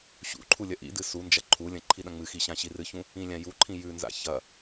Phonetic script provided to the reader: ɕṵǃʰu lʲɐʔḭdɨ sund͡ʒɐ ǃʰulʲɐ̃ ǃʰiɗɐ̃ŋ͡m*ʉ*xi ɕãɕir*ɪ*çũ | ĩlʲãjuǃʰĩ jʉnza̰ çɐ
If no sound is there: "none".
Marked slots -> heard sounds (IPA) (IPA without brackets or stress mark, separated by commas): ɨ, ɨ